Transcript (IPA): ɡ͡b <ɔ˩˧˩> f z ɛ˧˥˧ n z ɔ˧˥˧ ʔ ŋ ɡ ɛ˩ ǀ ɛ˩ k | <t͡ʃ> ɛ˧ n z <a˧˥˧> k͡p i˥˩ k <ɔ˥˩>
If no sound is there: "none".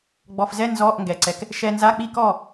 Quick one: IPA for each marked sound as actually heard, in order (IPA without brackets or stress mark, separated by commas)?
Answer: ɔ˩˧˩, ʃ, a˧˥˧, ɔ˥˩